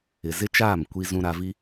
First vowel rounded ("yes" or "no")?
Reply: no